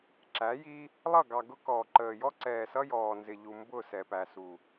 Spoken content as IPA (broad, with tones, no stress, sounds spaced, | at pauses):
ǁ æ˨˦ j i˦ | lˠ ʌ˦˨ ɡ ɑ˨ ɡ ʊ˦ k ɔː˨ ǃ əː˨ j ɔ˦ ǀ ɛː˨ s ʌ˦ j ɔː˨ n z ɪ˨ ʎ u˨ m b ʊ˦˨ s ɛ˨ p æ˨ s u˨